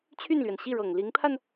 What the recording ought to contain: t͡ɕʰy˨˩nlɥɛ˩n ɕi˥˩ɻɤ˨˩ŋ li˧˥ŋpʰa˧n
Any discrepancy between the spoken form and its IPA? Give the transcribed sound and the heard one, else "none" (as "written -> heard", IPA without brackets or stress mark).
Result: y˨˩ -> y˥˩